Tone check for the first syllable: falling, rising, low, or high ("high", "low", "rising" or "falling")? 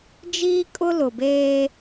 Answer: high